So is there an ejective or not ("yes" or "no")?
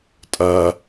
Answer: yes